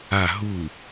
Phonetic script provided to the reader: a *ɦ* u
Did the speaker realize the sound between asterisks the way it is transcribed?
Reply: yes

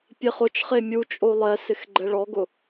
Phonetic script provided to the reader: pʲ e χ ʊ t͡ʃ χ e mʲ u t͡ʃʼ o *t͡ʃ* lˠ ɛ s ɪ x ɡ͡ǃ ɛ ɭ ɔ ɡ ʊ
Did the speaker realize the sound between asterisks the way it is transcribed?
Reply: no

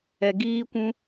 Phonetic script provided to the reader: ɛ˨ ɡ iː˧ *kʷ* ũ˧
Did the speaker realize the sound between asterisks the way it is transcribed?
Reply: yes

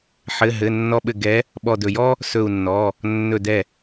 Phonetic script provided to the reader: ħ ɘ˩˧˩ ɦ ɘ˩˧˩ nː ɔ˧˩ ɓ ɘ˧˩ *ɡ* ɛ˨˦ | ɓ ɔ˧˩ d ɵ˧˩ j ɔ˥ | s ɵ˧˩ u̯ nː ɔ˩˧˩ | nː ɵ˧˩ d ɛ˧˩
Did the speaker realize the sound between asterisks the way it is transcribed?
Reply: yes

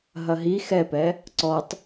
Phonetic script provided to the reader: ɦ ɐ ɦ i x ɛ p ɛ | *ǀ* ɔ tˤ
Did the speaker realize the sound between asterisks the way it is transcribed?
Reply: yes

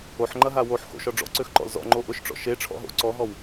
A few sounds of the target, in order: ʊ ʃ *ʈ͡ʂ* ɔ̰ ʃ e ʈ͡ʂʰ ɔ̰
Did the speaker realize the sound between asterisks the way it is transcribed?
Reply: yes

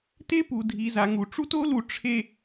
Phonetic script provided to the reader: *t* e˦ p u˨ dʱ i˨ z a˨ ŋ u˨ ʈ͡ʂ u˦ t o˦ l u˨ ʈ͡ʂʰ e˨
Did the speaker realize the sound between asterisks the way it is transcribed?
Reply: yes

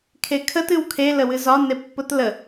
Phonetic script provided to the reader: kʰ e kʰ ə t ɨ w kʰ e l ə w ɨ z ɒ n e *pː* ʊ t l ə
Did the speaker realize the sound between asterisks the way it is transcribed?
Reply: yes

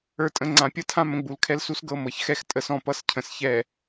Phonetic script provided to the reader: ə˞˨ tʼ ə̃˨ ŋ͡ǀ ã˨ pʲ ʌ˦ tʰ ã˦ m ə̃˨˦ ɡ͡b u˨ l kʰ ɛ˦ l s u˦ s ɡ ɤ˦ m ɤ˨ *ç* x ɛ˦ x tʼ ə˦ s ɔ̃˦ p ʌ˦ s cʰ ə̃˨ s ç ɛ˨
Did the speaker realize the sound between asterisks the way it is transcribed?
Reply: yes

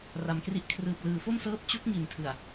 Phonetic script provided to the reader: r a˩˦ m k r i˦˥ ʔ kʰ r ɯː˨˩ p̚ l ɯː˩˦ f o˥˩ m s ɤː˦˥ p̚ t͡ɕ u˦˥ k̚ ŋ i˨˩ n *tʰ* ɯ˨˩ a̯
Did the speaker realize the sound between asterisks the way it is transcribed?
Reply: yes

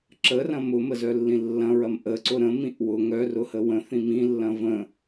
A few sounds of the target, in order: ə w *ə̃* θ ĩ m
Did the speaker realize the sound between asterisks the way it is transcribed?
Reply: yes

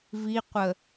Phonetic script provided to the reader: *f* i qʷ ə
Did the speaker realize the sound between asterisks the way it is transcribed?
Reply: no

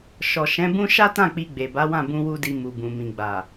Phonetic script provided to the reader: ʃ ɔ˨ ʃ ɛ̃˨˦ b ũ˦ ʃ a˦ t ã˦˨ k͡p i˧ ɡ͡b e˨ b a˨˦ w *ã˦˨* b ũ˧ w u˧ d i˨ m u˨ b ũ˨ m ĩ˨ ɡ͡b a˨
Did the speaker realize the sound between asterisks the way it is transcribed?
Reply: yes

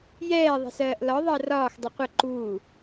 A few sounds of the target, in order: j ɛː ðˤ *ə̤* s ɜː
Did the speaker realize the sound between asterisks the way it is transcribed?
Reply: yes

